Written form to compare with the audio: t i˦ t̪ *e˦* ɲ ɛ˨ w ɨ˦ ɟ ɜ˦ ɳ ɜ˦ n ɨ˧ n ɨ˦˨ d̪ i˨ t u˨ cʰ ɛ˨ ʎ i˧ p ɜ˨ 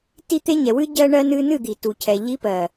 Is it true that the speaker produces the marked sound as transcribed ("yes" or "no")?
yes